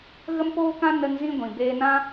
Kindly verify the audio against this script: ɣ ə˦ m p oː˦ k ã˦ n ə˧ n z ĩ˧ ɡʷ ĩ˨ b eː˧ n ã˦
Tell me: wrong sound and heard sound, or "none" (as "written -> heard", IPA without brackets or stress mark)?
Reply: none